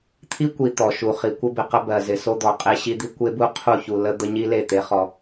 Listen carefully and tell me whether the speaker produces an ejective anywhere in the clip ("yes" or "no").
yes